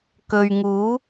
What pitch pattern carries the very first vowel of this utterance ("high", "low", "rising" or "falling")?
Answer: low